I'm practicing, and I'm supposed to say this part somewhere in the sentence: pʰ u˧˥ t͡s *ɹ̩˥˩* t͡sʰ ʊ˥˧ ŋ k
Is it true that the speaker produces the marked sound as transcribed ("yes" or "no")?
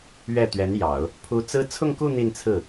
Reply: no